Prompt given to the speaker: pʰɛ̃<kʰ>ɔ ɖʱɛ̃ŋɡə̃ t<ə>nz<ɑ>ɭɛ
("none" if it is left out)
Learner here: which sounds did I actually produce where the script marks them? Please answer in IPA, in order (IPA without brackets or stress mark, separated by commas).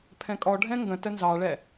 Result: kʼ, ə, ɑ